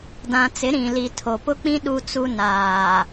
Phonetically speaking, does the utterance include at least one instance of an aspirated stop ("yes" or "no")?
yes